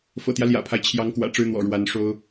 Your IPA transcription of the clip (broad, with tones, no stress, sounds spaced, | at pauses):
f ɤ̰˨˩ t̪ j ä˦ l j ä̰˨˩ pʰ a˦ ɪ̯ t͡ɕʰ j ɑ˧˥ ŋ k w ä̰˨˩ ʈ͡ʂ ɻ̩˥ n̪ w ɔ̰˨˩ ɻ w a˧˥ n ʂ o˥ ʊ̯